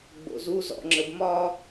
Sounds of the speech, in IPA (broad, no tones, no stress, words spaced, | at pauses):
ɡ͡bo̰zu zɔ̰ŋ͡ǁəbmɒ